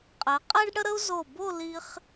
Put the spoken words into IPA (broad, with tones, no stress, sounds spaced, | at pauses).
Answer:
qʼ ɛ˩˧ qʼ ɛ˥ ɖ ɽ ə˥ ɾ ə˥ u̯ z o˧˩ b o˥˧ l i˧ χ